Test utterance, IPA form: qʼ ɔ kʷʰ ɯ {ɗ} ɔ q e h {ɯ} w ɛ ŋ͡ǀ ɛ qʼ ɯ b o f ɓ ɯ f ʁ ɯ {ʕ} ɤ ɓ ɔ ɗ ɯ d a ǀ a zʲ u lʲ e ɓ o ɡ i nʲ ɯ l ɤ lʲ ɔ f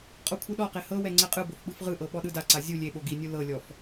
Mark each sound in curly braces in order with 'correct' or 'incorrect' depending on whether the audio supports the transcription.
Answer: correct, incorrect, incorrect

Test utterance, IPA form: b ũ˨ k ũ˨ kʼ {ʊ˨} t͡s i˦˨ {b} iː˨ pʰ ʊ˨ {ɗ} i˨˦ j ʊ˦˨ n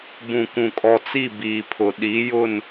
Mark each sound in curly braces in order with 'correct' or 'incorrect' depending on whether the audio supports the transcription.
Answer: incorrect, correct, correct

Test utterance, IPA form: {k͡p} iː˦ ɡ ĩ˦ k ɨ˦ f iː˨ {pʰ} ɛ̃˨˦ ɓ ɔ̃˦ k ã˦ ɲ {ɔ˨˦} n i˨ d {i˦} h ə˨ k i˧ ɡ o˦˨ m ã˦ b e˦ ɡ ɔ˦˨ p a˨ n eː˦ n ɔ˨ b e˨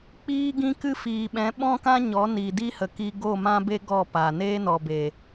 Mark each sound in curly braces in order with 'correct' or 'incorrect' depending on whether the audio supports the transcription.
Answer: correct, incorrect, correct, correct

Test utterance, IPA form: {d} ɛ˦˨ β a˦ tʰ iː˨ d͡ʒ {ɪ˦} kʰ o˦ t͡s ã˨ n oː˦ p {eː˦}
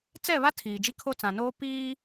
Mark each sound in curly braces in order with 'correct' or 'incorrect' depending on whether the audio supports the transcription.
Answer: incorrect, incorrect, incorrect

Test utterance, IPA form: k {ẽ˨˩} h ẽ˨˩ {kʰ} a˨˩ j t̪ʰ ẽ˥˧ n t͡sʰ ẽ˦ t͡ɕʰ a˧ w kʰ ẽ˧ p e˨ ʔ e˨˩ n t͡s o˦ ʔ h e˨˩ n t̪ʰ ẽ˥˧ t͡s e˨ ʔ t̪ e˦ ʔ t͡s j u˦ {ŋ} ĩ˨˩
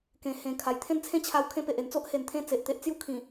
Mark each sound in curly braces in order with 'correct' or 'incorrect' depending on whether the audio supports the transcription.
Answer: correct, correct, incorrect

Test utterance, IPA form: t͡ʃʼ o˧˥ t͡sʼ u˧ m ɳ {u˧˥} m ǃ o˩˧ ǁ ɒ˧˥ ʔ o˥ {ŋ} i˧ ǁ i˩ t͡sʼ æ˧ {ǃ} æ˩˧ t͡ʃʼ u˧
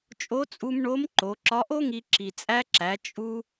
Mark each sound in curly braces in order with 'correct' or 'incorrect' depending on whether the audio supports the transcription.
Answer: incorrect, correct, incorrect

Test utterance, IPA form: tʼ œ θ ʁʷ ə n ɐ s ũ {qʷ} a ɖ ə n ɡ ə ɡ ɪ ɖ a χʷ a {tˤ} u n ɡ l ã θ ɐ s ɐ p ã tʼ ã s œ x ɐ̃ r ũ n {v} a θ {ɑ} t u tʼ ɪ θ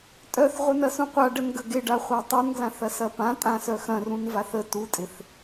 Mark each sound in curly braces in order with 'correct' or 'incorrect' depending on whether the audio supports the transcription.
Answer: correct, correct, correct, incorrect

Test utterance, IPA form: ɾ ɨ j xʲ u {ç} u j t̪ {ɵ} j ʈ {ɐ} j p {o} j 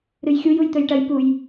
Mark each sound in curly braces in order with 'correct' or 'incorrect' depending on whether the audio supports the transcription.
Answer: incorrect, correct, correct, incorrect

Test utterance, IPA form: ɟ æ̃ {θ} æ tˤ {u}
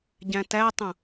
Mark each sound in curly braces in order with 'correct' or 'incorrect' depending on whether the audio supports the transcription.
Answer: incorrect, incorrect

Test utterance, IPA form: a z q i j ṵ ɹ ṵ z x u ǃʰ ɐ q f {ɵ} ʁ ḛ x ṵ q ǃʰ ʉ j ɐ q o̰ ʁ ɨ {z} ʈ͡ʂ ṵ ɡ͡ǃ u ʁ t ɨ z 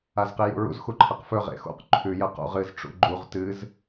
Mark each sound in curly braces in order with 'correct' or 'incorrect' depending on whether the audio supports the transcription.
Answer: correct, correct

